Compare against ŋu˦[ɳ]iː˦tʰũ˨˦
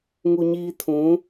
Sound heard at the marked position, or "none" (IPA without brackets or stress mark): ɲ